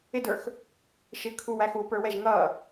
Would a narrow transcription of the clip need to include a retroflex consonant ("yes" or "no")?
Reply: no